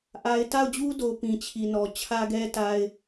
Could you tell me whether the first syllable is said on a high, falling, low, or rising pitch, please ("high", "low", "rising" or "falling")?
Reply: high